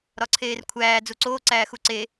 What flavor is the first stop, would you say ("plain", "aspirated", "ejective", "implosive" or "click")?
click